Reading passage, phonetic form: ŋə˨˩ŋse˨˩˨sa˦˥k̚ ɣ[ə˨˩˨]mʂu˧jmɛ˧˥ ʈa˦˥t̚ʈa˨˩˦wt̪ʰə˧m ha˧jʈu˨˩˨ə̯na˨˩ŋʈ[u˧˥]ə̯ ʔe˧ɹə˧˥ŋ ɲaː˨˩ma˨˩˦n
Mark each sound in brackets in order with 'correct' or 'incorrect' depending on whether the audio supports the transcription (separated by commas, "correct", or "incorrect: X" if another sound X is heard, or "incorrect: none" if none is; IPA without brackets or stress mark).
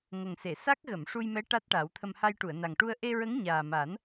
correct, incorrect: u˧